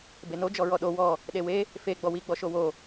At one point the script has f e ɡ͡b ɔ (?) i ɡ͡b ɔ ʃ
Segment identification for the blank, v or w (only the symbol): w